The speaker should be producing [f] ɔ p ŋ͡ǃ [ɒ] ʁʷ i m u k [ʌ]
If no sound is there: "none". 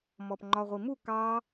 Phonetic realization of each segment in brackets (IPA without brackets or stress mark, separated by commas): m, ɒ, ɑ